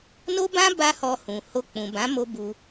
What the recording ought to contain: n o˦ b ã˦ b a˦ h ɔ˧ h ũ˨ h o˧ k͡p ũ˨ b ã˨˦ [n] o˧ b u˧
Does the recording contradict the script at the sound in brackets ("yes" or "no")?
yes